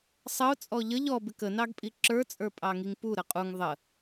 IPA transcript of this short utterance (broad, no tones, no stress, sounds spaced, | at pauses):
sˤ ʌ ʊ̯ t͡sʼ ɔ ʎ ə ʎ ɔ b ɪ k ə n ɑ ɡ pʼ i ǁ ə˞ t͡sʼ ə˞ pʼ ɑ ŋ i ŋ p u ɾ ə qʼ u ŋ ðˤ ə